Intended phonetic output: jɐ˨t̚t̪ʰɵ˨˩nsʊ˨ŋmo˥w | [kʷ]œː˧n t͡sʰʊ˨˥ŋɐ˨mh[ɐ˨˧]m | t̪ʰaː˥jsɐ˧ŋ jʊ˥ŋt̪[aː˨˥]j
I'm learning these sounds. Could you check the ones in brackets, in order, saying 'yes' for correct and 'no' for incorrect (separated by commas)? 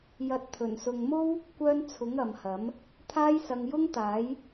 yes, no, yes